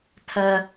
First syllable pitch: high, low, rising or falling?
high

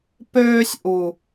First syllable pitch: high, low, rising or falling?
high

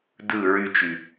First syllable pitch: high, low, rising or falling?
falling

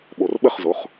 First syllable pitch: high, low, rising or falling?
low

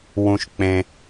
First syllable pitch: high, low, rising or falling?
low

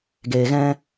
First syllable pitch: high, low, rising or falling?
low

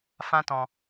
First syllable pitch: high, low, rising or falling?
high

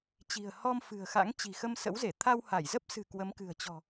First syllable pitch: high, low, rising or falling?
low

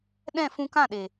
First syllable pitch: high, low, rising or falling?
falling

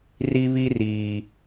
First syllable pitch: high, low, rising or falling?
high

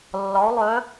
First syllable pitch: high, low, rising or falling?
rising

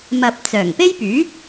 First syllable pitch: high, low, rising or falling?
low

